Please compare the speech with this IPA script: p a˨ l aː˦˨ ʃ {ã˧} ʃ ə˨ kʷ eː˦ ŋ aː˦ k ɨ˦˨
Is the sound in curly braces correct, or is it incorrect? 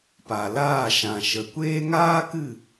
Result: incorrect